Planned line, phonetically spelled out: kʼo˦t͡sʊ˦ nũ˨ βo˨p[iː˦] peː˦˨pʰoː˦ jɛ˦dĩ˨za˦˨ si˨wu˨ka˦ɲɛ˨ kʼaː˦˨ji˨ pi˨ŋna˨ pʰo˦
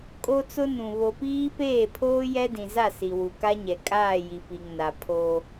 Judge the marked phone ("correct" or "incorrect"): correct